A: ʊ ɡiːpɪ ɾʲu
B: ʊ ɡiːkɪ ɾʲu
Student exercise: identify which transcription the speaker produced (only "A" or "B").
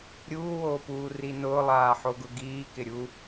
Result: B